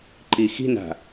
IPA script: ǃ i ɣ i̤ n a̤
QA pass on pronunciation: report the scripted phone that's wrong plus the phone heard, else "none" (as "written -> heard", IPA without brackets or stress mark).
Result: ɣ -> x